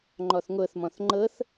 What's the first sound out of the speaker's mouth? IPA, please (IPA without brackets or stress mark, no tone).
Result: ŋ͡ǃ